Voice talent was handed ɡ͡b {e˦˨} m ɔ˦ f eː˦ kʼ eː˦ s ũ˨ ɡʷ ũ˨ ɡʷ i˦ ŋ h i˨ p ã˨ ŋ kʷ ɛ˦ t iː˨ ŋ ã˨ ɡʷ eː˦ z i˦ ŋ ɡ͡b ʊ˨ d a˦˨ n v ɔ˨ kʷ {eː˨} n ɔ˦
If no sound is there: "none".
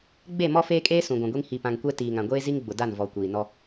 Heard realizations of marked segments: e˦˨, iː˨

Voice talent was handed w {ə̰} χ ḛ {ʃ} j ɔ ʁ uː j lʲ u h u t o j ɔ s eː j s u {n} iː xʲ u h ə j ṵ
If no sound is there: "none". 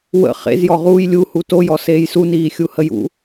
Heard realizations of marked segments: ə̰, z, n

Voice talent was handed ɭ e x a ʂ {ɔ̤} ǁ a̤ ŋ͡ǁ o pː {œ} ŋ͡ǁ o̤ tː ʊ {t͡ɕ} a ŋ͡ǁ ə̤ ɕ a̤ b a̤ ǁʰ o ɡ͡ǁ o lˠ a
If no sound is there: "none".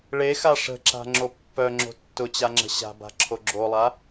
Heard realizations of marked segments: ə̤, œ, t͡ɕ

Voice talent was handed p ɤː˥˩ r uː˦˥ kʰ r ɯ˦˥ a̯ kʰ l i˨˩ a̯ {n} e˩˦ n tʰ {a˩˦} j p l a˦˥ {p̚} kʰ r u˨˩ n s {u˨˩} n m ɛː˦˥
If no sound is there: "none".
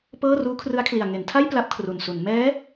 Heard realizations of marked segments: ŋ, a˥˩, p̚, u˩˦

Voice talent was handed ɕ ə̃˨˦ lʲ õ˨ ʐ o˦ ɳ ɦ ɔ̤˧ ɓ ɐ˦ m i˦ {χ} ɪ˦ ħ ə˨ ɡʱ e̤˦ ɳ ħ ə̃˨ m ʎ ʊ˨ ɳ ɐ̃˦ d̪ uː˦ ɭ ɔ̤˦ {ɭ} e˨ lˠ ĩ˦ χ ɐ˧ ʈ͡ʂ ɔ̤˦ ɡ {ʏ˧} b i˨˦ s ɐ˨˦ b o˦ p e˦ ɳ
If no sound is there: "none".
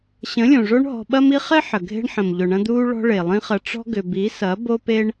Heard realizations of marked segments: χ, ɭ, ʏ˧

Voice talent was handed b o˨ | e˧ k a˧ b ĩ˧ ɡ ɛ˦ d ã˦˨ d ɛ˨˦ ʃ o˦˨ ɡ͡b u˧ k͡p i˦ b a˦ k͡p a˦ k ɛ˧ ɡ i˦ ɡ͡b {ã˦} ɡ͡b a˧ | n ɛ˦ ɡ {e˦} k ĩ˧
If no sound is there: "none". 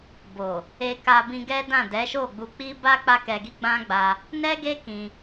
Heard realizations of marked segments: ã˦, e˦

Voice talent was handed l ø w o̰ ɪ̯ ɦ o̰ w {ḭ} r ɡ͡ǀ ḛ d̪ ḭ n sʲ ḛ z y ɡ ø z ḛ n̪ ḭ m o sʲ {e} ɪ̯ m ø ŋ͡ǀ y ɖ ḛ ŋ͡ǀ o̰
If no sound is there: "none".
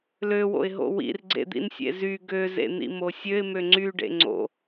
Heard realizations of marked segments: ḭ, ø

